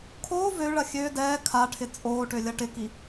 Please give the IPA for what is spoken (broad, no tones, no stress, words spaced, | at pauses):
kʰoː vøɭɐ xʲø dɛː kʰaʈʰɪ t͡sʼoːʈølʲɐ ʈɪki